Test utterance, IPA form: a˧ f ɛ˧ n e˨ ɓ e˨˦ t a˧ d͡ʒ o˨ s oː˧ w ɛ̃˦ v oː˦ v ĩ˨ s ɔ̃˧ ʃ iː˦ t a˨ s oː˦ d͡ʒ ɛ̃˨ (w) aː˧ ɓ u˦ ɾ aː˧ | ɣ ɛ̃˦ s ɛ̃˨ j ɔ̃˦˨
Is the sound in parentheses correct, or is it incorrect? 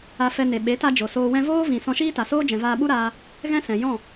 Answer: incorrect